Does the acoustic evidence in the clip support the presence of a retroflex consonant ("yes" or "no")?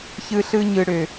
yes